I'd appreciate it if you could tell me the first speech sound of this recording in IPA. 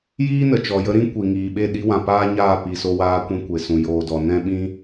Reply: j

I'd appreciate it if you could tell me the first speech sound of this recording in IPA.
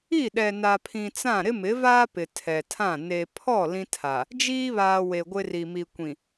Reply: i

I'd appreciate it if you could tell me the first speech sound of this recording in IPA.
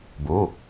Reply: b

